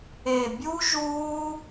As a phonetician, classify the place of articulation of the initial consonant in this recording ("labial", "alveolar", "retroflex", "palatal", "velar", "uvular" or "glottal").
labial